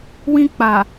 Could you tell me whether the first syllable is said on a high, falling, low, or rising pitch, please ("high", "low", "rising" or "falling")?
high